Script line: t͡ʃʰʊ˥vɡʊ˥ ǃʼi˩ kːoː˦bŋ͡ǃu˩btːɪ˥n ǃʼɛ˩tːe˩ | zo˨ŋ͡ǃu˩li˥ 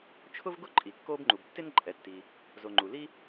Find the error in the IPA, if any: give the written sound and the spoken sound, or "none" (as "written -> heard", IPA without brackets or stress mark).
e˩ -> i˩